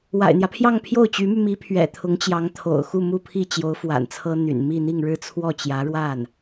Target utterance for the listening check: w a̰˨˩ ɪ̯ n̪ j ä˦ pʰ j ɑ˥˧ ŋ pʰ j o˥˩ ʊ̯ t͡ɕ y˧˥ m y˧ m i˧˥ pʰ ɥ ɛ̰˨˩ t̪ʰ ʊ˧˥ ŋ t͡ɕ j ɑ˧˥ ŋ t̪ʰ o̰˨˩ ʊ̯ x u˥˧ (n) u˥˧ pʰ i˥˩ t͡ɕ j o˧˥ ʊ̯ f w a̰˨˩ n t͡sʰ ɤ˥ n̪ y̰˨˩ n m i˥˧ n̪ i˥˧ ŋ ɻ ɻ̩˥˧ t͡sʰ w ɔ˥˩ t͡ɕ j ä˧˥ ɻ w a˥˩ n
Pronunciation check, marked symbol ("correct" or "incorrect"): incorrect